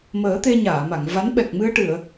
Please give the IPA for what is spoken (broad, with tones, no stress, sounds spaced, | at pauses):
m əː˨˩˦ t̪ e˧ ɲ aː˨˩˨ m a˨˩˨ ŋ v a˧˥ n ɓ ɛ˨˩ k̚ m ɨ˧ ə̯ ʈ ɨ˨˩˨ ə̯